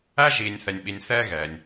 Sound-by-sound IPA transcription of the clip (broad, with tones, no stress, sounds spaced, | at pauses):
æ˥ ʒ iː˨ nʲ θ ɛ˨ nʲ ɓ i˨ nʲ θ ɛː˦ ɣ ɛː˩ nʲ